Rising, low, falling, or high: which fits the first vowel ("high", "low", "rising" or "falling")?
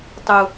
high